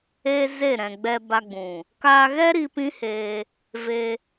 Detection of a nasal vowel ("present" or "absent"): present